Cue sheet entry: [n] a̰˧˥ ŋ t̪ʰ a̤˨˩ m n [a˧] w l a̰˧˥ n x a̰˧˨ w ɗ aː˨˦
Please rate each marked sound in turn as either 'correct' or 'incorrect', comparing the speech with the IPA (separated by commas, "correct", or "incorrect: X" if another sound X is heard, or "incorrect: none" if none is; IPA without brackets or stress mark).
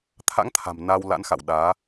incorrect: t̪ʰ, correct